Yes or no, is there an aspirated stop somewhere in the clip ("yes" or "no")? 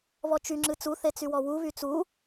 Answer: no